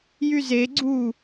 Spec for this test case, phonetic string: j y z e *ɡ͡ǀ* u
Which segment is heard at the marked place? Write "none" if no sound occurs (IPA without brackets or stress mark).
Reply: ɡ͡ǀ